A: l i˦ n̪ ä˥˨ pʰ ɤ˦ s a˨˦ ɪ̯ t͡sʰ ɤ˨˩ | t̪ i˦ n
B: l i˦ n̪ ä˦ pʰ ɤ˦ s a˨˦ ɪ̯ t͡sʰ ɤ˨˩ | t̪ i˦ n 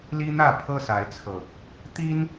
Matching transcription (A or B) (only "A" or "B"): A